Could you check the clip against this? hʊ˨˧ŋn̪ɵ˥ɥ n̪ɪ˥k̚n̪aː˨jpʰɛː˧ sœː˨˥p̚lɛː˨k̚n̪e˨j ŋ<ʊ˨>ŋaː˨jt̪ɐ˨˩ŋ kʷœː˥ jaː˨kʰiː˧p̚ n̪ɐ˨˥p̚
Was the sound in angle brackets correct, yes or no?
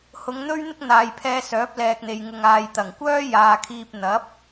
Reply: yes